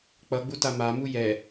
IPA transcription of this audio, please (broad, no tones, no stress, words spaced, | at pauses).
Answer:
k͡pʌɡ͡buta mamu jɛ